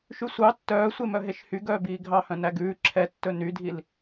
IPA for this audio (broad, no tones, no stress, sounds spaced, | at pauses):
ʃ y sʷ ɑ tː œː sʷ e m œ ɦ e ʃ h y ɡ œː b iː ɡʱ ɑ h œ̃ n æ ɡ ʉː ǁʰ ɛ tː ɵ n y dʱ i l